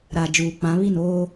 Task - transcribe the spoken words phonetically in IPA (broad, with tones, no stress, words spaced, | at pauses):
ɾa˨ d͡ʒuː˨k͡pã˨˦ βi˦˨noː˦